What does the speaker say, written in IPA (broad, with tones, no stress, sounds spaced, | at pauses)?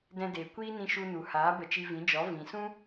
d ɛ̃˧ d eː˨ kʷ iː˦ n ĩ˧ ʃ u˧ n u˨ h aː˨˦ b ə˧ t͡ʃ i˧ v ĩ˨˦ d͡ʒ ɔ˨˦ v ĩ˨ s ũ˦